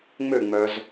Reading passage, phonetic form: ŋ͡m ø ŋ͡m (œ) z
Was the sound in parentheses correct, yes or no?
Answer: yes